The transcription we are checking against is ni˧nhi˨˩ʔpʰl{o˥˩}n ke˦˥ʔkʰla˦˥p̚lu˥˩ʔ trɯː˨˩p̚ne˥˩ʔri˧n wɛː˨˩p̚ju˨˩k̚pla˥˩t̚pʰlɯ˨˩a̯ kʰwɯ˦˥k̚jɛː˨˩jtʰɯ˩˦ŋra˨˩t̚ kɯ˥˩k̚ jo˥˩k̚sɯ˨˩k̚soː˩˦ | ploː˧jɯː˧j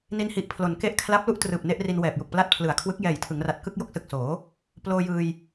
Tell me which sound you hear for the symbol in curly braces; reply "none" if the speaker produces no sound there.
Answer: o˩˦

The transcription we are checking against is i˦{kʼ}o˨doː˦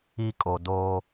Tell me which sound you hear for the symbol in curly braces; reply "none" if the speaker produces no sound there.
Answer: kʼ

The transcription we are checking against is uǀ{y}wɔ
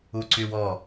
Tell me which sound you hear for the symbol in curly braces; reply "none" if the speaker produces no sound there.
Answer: y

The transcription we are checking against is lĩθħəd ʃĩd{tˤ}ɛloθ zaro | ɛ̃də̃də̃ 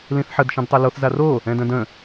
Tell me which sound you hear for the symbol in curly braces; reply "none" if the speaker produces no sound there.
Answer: tˤ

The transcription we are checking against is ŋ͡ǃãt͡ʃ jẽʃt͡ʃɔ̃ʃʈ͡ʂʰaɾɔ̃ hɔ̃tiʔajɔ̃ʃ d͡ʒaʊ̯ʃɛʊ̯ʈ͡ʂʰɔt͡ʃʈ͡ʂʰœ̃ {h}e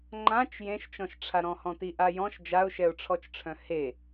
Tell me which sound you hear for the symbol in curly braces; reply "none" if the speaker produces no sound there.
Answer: h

